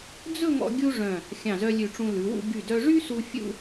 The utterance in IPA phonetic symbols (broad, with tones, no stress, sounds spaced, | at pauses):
d͡z ɵ˥˧ ŋ ɔ̰˧ ɡʲ u˥ ʐ œ̃˧˩ | xʲ ɑ̃˧˩ z œ˧ lʲ ʉ˧˩ ʈ͡ʂ ũ˧ l ʉ˩˧ w ṵ˥˧ ɡ y˧˩ d œ˧ ʐ y˥ s u˧ fʲ ṵ˥˧